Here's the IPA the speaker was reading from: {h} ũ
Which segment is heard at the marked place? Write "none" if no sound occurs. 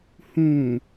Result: h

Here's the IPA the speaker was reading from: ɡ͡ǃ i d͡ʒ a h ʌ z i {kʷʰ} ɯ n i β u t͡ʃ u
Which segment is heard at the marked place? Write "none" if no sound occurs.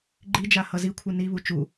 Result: kʷʰ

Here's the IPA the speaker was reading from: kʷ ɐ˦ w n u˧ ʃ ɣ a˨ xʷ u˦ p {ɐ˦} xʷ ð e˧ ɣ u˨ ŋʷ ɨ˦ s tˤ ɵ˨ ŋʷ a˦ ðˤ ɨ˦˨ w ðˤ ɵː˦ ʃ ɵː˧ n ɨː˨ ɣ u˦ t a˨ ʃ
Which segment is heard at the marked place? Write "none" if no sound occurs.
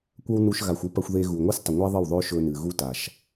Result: ɐ˧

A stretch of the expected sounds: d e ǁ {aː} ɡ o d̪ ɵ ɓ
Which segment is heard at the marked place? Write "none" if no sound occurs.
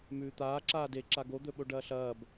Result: a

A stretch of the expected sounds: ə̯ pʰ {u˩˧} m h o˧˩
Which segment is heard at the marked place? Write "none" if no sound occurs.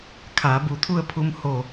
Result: u˧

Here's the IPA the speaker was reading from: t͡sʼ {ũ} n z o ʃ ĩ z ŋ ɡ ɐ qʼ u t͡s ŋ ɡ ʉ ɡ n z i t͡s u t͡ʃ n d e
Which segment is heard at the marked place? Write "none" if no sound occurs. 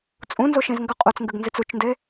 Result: ũ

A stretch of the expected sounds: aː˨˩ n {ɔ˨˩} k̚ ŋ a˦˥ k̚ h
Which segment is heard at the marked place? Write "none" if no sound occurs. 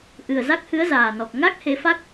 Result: ɔ˨˩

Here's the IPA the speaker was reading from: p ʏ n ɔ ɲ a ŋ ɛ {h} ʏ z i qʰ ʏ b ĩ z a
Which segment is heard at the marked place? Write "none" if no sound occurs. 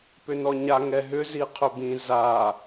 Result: ɦ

